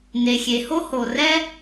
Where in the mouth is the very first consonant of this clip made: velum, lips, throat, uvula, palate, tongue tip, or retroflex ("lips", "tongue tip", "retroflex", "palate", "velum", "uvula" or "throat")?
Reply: tongue tip